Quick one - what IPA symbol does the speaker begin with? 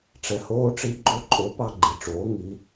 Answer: ʈ͡ʂ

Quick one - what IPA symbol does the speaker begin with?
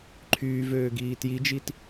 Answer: ǃʰ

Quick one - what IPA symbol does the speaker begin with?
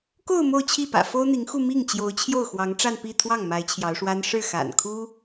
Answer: k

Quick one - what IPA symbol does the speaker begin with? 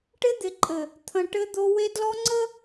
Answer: ʈ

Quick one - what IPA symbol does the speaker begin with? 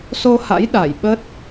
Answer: s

